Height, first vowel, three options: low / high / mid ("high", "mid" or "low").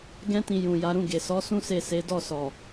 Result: mid